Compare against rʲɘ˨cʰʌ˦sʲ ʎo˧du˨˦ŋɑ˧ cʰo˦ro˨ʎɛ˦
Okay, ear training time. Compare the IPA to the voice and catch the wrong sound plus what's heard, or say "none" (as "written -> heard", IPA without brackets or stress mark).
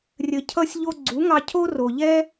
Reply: d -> ɡ͡ǀ